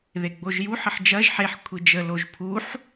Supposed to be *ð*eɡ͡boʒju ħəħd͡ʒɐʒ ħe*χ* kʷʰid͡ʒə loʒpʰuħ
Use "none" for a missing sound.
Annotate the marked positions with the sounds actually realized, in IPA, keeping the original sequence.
ð, ħ

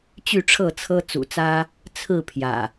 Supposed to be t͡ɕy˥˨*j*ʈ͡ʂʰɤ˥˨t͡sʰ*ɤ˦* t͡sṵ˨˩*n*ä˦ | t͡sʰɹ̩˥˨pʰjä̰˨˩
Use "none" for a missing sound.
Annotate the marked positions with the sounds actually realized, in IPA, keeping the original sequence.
none, ɤ˦, t͡s

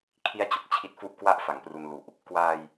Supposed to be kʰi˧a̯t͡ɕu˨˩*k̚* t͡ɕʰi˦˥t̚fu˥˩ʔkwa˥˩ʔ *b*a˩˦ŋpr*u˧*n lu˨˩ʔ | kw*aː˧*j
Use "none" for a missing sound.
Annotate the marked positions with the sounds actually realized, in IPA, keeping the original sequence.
k̚, f, u˧, aː˧

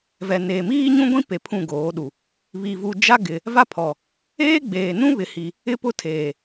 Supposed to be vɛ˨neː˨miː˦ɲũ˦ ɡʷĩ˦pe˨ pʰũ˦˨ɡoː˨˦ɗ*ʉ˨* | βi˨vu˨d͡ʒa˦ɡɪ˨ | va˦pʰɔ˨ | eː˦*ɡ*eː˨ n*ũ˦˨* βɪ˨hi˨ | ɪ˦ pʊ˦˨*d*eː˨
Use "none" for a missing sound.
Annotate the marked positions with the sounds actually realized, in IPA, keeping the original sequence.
u˨, ɡ͡b, ũ˦, tʰ

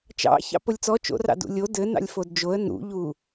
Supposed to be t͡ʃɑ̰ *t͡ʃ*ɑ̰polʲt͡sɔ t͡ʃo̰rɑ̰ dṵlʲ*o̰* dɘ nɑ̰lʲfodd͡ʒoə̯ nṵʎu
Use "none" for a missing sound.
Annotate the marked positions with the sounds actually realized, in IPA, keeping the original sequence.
ç, o

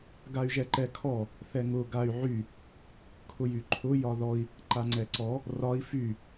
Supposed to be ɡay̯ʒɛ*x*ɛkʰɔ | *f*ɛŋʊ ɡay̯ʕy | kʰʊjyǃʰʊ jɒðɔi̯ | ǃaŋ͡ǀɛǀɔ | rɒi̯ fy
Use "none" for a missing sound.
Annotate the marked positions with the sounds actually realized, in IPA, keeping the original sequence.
ǃ, θ

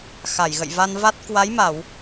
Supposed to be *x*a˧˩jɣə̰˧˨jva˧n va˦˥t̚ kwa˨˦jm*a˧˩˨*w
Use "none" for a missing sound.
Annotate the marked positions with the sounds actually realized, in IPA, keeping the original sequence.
x, a˧˩˨

